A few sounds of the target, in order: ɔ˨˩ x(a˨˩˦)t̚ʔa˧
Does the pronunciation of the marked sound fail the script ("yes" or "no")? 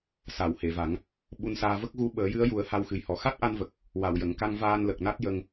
yes